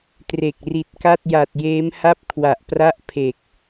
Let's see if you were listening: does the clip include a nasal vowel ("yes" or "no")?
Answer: no